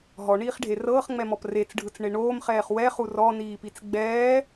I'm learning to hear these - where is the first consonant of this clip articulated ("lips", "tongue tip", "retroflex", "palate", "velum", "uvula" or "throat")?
throat